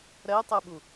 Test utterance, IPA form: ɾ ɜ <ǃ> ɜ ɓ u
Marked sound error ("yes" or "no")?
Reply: yes